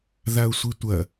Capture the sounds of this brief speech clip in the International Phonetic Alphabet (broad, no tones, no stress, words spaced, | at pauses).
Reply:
ðaʊ̯sʷitʷɐ